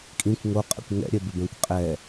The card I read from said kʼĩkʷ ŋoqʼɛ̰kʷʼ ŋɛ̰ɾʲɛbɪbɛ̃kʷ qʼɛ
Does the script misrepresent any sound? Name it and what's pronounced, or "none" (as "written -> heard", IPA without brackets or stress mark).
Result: kʷʼ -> kʷ